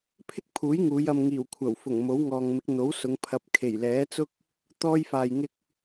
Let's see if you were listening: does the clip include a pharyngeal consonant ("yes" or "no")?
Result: no